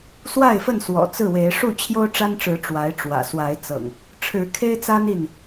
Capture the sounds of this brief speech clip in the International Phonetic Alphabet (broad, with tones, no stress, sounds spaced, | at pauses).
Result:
s w a˥˨ ɪ̯ f ə˥˨ n s w ɔ̰˨˩ t͡s ɹ̩˥˨ w e˨˦ ɪ̯ ʂ u˥˨ t͡ɕʰ j o˦ ʊ̯ ʈ͡ʂ a˦ n ʈ͡ʂ ɻ̩˨˦ ʈ͡ʂ w a˨˦ ɪ̯ ʈ͡ʂ w ä̰˨˩ s w a˨˦ ɪ̯ t͡s ɤ̰˨˩ ŋ | ʈ͡ʂʰ ɻ̩˨˦ kʰ e˦ ɪ̯ t͡s a˦ n i˥˨ n